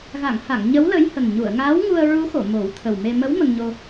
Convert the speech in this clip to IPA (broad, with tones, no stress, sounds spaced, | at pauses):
ɣ a˨˩˨ ŋ h a˨˩˨ ŋ ɲ ə˧˥ w l ə˧˥ j h ə˨˩ ŋ ɲ u˨˩˨ ə̯ ŋ aː˧˥ w ŋ u˧ ə̯ ɹ u˧˥ x o˨˩˨ m o˨˩˦ w t̪ʰ ə˨˩ w m e˧ m ə˧˥ w m ə˧ ŋ ɲ o˧